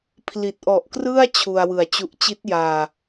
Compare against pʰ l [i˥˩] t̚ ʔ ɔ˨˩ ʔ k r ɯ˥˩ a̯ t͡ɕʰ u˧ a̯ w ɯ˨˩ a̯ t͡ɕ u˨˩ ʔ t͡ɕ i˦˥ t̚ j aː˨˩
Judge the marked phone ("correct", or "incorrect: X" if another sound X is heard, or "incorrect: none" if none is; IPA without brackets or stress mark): incorrect: i˨˩